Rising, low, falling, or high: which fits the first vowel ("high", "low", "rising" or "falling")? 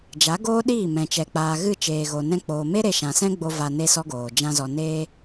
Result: rising